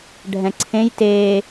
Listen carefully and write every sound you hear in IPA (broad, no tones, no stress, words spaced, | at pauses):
ɖʱɛ̃ǀʰẽj teː